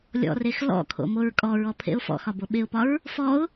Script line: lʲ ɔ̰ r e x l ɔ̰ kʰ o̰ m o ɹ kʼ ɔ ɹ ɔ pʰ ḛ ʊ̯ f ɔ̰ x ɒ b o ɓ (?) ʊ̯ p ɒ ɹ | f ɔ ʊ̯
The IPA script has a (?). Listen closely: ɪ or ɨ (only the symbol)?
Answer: ɪ